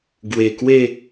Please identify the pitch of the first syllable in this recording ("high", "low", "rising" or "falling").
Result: low